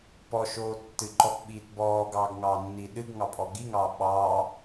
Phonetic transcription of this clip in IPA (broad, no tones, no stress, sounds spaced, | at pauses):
p ɔ ʃ oː tː ɨ ǃ ɔ p ɓ iː t b ɔː ɡ ɑː ɡ ŋ ɑː nː i ɗ ɨ ɡ ŋ ɑ pʼ ɔ ɡ i ŋ ɑː ɓ ɑ